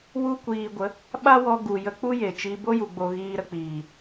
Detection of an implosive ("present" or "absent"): present